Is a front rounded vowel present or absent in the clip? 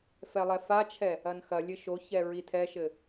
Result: absent